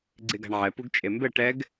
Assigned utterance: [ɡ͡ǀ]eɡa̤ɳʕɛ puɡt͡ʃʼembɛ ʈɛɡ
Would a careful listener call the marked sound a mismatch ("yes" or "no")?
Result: no